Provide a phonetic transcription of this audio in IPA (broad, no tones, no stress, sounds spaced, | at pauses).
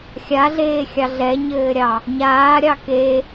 xʲ a ɮ eː xʲ ɑ ɮ ɛ ɲ ɘː ɾʲ ɑ | ɲ aː ɾʲ ɑ k e